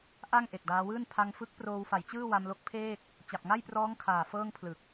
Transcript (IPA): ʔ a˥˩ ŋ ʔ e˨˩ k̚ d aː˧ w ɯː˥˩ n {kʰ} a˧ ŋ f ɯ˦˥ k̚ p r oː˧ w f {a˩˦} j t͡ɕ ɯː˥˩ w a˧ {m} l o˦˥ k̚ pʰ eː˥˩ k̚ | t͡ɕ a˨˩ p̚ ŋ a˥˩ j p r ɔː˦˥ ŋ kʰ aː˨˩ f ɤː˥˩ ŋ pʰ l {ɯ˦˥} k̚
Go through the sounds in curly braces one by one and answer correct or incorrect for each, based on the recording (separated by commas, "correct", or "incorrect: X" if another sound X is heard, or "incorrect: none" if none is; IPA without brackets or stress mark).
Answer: incorrect: pʰ, correct, correct, incorrect: ɯ˨˩